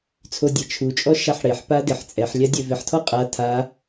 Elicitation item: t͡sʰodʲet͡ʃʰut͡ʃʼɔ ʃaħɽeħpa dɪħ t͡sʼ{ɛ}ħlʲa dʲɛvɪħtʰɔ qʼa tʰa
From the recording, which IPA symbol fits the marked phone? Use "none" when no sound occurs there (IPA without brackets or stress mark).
ɛ